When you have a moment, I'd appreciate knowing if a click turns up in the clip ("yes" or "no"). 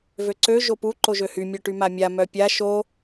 yes